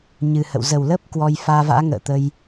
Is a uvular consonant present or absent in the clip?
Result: absent